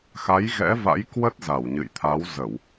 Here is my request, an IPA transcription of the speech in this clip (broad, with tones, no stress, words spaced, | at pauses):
xa˨˦jɣɛ̰˧˥va̰˧˥j kwə˦˥t̚za˧˩wɲɨ̰˧˨j t̪ʰa˨˦wzə˧˩˨w